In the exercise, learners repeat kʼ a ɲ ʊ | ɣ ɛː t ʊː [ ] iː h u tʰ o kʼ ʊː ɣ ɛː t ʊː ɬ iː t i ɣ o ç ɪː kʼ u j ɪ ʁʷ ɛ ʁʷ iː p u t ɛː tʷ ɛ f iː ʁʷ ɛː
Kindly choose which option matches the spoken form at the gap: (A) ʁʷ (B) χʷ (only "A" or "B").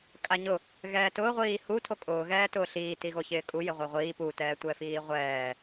A